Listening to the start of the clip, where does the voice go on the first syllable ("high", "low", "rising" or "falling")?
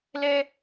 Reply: high